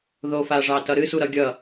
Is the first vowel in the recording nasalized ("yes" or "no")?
no